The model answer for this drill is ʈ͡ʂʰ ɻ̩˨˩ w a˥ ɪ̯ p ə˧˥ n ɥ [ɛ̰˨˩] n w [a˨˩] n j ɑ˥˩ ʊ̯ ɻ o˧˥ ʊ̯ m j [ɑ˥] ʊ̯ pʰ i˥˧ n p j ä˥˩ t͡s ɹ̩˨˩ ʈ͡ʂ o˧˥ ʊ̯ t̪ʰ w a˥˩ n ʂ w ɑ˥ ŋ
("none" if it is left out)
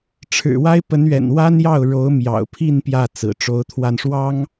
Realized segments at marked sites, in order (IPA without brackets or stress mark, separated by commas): ɛ̰˨˩, a˥, ɑ̰˨˩